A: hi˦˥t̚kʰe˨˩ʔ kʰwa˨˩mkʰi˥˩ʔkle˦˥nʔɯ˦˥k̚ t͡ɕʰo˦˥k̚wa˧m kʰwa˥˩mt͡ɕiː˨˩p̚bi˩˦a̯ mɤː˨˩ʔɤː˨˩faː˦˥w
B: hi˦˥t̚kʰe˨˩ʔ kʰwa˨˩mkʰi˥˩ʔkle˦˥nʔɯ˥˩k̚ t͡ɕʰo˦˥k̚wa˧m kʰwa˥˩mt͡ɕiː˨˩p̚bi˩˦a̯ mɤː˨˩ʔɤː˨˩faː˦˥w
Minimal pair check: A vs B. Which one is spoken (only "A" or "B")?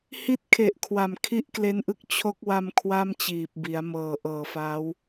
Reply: A